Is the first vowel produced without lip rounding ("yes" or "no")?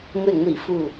yes